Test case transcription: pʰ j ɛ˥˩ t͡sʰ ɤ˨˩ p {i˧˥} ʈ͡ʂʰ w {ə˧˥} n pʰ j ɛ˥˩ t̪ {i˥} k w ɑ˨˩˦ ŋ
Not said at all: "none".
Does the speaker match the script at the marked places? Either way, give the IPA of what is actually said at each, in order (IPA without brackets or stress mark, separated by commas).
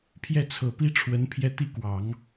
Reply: i˥, ə˧˥, i˥